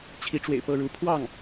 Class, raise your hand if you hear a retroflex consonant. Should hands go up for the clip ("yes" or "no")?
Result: yes